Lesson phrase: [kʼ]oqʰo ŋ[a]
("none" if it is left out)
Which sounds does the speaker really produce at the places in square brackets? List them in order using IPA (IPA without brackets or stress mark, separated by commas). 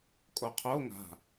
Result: kʼ, a̤